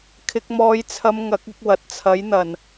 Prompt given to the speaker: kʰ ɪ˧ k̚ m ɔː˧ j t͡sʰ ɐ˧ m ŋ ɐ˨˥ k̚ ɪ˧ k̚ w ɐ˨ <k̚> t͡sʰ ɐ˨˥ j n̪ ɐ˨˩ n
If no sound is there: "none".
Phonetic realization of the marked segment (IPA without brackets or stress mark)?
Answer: t̚